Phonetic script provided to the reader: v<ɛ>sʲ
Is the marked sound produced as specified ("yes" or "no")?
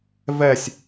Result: yes